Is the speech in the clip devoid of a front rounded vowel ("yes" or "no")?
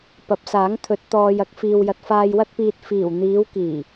yes